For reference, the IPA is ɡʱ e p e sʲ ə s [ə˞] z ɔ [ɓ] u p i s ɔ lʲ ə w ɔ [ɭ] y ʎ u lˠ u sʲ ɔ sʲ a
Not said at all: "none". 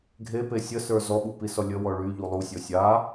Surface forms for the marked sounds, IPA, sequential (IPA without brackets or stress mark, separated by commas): ə˞, ɓ, ɭ